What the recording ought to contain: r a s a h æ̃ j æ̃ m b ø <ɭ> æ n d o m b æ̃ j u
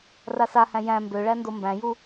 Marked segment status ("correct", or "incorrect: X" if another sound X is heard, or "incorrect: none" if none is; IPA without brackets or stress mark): correct